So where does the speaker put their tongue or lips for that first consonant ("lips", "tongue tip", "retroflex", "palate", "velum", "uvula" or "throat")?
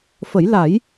lips